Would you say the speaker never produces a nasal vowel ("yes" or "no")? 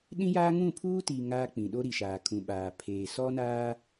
no